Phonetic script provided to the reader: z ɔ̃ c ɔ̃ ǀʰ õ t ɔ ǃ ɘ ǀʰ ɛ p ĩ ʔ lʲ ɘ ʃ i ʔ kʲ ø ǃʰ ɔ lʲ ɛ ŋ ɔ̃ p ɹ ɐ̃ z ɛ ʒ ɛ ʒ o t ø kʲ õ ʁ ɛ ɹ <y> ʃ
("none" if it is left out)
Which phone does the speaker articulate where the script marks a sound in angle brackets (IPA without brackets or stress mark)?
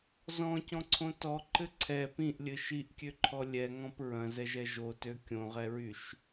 y